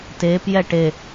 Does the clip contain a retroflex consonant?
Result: yes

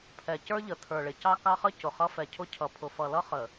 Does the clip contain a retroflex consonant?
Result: yes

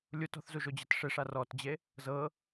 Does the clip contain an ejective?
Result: no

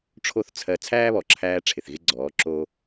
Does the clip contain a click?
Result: yes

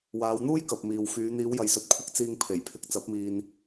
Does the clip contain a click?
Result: no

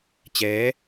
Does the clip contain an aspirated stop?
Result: no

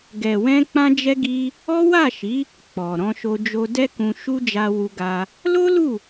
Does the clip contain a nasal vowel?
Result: yes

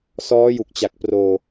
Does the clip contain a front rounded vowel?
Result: no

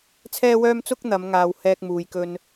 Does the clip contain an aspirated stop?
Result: yes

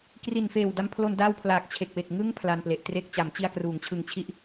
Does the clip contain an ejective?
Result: no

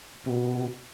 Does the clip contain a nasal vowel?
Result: no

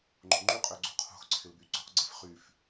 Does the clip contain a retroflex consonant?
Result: no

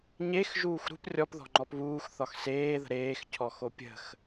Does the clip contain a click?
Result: yes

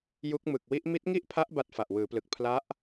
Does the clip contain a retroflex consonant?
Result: no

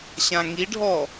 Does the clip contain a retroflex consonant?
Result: yes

